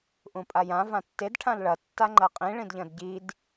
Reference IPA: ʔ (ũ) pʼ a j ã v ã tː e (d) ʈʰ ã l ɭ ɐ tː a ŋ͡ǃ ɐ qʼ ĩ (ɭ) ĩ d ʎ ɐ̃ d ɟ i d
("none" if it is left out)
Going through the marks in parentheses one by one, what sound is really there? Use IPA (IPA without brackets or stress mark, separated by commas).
ũ, d, ɭ